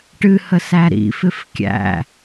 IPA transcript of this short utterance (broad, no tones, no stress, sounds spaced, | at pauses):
ʈ ɨ h ə s æ ɾ ḭ f ɪ f kʲ æ̰